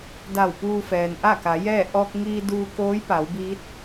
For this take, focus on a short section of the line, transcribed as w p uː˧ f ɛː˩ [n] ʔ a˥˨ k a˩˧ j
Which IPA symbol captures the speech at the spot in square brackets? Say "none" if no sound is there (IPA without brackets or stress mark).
n